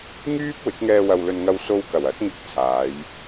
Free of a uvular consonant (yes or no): yes